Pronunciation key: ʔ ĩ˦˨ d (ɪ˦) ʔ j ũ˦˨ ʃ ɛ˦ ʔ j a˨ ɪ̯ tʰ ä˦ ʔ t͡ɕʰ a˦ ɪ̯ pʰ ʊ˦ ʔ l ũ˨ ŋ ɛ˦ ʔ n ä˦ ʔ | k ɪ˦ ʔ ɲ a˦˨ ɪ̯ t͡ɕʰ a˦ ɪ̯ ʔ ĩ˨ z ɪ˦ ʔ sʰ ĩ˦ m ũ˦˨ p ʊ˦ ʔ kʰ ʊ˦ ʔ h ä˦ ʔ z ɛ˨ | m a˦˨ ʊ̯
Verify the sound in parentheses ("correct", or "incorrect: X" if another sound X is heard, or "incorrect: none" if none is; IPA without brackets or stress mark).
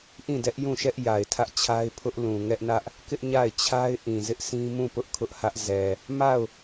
incorrect: ɛ˦